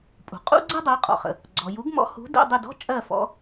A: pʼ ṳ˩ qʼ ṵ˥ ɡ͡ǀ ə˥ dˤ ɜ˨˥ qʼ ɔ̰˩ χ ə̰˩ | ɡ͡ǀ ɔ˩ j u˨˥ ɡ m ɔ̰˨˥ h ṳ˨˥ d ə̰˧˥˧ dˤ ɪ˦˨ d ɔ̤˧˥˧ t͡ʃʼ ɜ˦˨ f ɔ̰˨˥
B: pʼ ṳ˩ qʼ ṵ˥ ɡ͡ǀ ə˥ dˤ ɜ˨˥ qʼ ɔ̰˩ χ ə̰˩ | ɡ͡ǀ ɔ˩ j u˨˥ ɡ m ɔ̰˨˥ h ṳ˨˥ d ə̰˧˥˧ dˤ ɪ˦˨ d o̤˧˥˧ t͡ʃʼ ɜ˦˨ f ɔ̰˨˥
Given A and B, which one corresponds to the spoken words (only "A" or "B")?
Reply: A